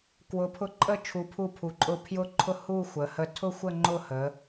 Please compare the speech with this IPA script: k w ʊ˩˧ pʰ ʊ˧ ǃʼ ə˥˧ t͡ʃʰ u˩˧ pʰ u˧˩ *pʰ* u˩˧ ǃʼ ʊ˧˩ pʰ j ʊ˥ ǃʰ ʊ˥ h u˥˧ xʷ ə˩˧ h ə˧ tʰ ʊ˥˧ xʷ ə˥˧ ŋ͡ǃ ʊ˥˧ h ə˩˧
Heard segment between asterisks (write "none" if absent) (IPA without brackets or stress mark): pʰ